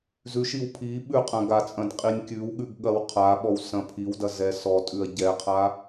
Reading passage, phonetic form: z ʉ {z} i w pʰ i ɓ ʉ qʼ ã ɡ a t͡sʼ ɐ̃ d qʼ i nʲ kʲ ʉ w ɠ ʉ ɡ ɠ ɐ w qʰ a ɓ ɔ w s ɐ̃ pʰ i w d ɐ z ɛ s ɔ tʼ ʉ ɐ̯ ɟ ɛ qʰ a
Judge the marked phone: incorrect: ʃ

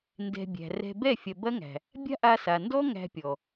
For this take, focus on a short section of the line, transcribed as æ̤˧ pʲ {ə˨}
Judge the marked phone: incorrect: ɔ˨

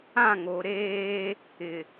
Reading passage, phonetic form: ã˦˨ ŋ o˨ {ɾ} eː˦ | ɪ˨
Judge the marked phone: correct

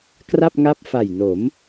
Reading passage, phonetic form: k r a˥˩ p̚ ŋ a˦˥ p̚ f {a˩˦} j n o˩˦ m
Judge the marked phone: incorrect: a˨˩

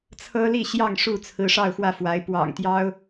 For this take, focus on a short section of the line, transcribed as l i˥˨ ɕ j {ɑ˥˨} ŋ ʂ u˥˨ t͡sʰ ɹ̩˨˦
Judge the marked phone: correct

